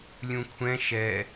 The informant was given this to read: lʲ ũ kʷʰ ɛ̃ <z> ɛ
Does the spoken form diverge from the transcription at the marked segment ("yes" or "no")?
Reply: yes